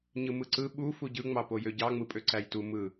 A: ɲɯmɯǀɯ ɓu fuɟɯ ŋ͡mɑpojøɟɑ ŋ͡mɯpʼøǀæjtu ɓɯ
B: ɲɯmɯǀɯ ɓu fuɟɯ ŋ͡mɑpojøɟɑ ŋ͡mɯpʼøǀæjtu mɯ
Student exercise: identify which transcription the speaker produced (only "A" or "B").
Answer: B